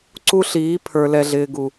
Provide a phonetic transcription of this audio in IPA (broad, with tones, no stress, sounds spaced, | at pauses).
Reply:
ǀ u˦ ɬ iː˨˦ pʰ ə˞˨ l ɛ˨ ɮ ɪː˨ ɡ u˨